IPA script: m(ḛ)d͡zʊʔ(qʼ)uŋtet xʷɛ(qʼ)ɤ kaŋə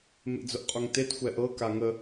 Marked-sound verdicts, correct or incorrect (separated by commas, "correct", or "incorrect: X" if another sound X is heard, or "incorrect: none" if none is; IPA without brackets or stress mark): correct, correct, incorrect: ʔ